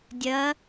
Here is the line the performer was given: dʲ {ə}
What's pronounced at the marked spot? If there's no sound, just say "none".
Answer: ɐ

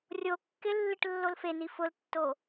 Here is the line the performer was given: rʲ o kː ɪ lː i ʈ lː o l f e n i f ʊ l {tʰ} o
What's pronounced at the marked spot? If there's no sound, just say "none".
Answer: tː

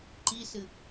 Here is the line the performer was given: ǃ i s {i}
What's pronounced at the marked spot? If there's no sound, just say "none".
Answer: ɨ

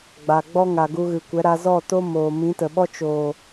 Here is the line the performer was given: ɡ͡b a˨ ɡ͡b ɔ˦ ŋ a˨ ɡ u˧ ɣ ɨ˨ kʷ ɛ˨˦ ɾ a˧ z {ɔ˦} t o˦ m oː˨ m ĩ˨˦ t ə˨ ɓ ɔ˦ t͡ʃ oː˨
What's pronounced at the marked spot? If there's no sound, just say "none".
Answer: ɔ˦˨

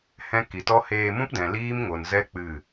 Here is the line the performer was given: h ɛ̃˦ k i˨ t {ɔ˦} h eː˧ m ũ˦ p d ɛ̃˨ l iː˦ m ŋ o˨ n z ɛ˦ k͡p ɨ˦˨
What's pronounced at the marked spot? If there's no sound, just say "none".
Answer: ɔ˦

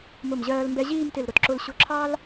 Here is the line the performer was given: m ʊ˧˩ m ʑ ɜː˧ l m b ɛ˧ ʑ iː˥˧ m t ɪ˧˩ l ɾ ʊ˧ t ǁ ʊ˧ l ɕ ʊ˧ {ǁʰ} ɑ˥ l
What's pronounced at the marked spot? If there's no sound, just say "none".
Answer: ǁʰ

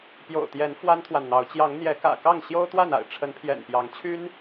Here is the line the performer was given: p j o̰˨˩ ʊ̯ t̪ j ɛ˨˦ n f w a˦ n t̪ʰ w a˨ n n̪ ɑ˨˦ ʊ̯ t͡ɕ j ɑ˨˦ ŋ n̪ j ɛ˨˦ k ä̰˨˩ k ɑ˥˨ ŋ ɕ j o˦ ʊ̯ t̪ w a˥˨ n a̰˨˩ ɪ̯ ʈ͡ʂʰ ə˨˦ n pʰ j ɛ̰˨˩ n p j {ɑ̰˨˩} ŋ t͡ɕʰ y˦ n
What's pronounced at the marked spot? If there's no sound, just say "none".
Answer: ɑ˨˦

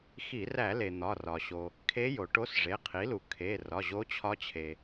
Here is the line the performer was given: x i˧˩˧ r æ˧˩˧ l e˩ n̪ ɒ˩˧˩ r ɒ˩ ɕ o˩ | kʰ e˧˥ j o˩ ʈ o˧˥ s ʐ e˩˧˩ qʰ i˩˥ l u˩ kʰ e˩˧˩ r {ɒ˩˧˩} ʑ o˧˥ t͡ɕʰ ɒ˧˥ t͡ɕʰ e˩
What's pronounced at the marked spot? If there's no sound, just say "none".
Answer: ɒ˩˧˩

